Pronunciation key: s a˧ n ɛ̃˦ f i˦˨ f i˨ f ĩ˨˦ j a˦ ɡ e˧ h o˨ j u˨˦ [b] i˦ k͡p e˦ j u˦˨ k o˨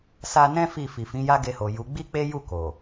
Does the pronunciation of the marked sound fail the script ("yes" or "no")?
yes